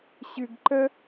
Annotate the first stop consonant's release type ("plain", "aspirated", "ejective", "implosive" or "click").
plain